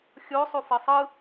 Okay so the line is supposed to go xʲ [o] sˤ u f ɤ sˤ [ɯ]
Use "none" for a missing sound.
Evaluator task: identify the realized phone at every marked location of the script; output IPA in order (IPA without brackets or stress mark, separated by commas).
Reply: o, ɯ